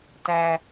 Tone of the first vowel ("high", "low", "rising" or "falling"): low